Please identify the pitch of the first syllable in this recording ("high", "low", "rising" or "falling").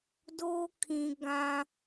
high